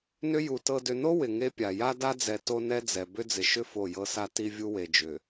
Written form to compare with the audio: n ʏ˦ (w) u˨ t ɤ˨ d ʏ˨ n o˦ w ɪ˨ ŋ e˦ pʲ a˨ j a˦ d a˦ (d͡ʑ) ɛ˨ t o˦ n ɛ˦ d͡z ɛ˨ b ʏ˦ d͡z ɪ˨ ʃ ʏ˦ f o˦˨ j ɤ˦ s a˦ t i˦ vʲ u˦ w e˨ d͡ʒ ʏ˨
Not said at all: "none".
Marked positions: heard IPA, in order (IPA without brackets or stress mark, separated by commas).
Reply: j, d͡z